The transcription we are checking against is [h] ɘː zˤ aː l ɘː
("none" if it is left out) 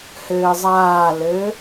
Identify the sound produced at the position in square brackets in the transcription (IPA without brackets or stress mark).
h